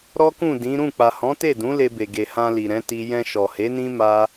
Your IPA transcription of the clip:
ɾɔ˦kũ˦˨dĩ˨˦ ɾũ˦˨ k͡pa˨hɔ̃˨˦te˦˨dũ˨˦ le˧be˨ɡe˨ hã˧li˨ɾɛ̃˨˦ ti˦ jɛ̃˧ʃɔ˨he˨˦nĩ˦ ma˦

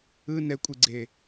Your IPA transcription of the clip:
ɯ nɛkʷʼiɡ͡ǀe

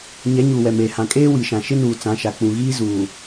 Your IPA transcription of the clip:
ɲɛ˨˦ ɲuː˨wɛ˨meː˨ hã˨kʼeː˦ wi˨ʃã˨ ʃɪ˦nuː˨ t͡sã˨˦ʃa˨ k͡pũ˨ɣiː˦ zuː˨

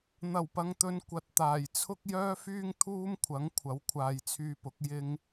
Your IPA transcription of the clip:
n̪ɐ˨˩wpɐ˨ŋt̪ɵ˨˧n kʷɐ˨t̚t̪aː˨˩jt͡sʰʊ˥k̚ jœː˥fyː˥ŋ t̪ʰuː˥mkʷʰɐ˨˥ŋ kʷʰɐ˨˥wkʷʰaː˨jt͡sʰyː˧pʊ˨˥k̚ jɪ˥ŋ

